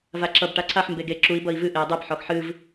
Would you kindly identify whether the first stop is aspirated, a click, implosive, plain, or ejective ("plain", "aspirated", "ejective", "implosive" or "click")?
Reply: click